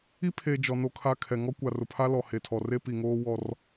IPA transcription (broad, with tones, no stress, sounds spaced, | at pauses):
i˦ pʰ e˨ d͡ʒ ɔ˨ n o˦˨ kʰ a˦ kʰ ɛ˨ ŋ ɔ˦ kʷ a˨ r ʊ˨ pʰ a˦ l ɔ˨ h e˨ tʰ ɔ˨ r e˦ p i˨ ŋ oː˦ w ɔ˦ r